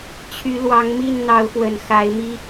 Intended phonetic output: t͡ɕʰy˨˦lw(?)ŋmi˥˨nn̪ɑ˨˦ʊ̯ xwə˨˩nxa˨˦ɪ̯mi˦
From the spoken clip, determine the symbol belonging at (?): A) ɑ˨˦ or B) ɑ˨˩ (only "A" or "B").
A